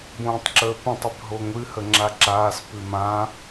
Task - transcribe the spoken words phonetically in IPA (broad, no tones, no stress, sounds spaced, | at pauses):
b õː tˤ ǁ əː p ə̃ tˤ ɪ b ɦ o ŋʷ ɨ h ə ŋ͡ǁ a ǁ aː s p ɨ m ã